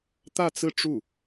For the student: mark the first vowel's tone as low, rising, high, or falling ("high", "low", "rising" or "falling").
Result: falling